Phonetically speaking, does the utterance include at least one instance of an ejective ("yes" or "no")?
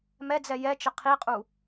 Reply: yes